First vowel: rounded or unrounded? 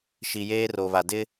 unrounded